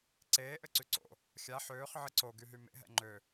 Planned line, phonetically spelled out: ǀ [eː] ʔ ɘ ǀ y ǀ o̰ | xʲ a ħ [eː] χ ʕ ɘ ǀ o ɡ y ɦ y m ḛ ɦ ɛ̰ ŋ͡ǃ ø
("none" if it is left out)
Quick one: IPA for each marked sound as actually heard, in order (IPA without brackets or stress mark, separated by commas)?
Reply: eː, øː